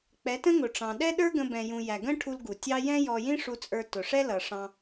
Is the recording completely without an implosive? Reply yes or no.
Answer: no